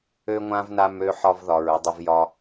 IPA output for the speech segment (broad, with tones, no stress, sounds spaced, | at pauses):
ø˥ ŋʷ ã˥ v n a˧ m ø˥ ħ ɒ˥ v ð ɒ˧ ɹ ɪ˥ dˤ ɪ˥ v j ɒ˥